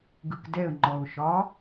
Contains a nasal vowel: no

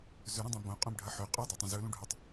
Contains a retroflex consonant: yes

